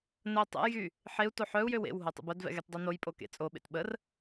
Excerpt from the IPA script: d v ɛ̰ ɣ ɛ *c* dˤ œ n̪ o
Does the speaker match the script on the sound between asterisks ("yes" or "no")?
no